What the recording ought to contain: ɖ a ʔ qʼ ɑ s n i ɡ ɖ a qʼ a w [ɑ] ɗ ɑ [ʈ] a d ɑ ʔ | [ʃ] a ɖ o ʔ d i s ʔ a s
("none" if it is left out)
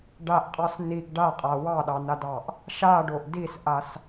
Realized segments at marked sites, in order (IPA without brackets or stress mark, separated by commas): ɑ, n, ʃ